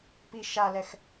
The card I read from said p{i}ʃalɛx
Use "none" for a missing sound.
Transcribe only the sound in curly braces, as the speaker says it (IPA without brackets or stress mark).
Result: i